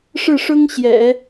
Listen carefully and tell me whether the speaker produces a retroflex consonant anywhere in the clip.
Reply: yes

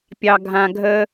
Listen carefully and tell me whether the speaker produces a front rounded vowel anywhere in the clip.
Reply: no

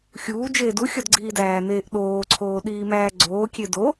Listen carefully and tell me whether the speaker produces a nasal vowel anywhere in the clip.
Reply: no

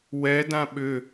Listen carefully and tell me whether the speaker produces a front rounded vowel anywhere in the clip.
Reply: yes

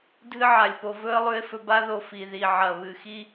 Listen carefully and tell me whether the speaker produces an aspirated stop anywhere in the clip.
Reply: no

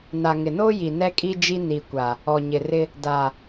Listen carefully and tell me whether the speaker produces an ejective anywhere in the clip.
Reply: yes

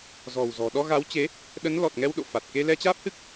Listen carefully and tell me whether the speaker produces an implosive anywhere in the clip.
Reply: yes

